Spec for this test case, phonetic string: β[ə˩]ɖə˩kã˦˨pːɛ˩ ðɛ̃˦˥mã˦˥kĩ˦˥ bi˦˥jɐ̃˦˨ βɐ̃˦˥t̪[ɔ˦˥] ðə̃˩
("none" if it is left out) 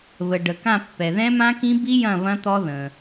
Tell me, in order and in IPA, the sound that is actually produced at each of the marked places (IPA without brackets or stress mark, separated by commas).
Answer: ə˩, ɔ˦˥